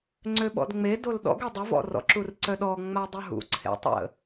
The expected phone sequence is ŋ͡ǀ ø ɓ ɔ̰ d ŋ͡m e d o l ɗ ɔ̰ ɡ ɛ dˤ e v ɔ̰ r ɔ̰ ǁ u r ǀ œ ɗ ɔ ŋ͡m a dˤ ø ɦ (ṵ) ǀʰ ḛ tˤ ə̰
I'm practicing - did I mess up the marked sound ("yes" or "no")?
no